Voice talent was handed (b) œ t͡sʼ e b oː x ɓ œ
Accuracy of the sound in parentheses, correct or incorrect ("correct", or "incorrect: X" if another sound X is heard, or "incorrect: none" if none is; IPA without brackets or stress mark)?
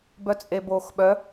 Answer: correct